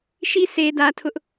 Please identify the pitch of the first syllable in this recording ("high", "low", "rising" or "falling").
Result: high